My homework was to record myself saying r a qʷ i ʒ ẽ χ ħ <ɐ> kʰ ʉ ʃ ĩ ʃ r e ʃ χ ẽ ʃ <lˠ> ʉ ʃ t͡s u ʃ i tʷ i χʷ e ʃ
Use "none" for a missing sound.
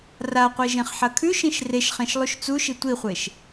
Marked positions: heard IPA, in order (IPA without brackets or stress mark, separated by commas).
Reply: ɐ, lˠ